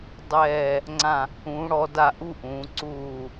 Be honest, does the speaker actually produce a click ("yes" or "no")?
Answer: yes